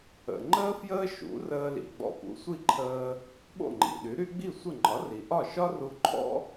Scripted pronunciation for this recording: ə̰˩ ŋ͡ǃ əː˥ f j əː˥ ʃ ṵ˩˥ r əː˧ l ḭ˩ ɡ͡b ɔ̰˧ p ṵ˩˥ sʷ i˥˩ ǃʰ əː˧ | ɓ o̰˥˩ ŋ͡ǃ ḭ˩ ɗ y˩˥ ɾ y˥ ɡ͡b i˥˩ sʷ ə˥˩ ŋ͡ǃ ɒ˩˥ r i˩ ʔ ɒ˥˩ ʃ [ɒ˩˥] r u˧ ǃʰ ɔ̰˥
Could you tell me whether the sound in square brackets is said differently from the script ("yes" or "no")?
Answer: yes